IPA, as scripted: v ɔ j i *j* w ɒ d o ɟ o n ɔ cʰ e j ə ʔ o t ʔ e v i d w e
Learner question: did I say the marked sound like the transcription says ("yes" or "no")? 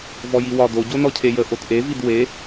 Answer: no